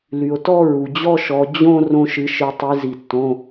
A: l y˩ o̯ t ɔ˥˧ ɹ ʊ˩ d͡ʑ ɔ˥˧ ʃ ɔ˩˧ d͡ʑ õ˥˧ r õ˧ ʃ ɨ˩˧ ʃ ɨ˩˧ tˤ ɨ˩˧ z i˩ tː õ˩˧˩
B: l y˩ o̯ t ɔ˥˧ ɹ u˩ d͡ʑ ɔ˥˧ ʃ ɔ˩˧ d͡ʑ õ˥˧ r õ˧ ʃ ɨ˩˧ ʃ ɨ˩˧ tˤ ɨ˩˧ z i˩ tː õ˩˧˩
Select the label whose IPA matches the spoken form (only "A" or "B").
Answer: B